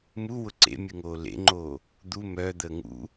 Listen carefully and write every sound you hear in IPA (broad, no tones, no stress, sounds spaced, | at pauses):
m u w ʊ ǀ ḛ mʲ ɯ ŋ oː l ḛ ŋ͡ǃ oː | d̪ u m œ d̪ əː ŋ ṵ